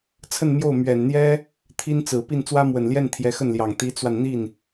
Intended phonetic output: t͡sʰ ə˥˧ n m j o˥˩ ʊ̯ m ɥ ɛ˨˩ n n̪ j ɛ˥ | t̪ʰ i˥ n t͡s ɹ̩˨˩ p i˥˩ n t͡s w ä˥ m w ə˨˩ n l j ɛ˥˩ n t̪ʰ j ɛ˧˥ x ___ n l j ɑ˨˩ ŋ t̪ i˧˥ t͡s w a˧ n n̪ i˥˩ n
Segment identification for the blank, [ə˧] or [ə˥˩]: ə˥˩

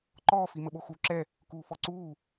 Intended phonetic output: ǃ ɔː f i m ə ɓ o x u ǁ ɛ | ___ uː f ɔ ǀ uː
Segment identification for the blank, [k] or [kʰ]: k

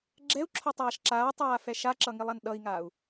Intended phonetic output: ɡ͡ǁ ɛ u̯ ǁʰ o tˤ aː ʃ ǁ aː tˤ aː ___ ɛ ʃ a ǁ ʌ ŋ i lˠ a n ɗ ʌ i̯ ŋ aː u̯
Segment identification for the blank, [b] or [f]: f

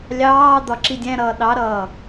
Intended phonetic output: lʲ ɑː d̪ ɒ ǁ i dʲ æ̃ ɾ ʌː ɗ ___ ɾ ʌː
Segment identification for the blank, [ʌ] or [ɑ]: ɑ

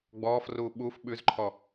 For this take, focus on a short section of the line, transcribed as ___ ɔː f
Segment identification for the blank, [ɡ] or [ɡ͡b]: ɡ͡b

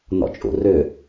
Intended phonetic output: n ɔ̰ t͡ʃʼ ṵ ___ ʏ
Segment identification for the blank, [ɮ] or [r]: r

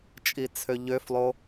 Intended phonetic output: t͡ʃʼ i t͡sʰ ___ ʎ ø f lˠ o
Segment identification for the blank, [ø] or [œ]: ø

